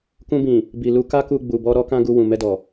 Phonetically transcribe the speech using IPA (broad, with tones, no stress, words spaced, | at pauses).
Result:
kũ˧bĩ˨ | bi˨ lu˧ka˦ku˧ ɡ͡bu˨bɔ˧ ɾɔ˦kã˦ɡu˧ wũ˨mɛ˧dɔ˨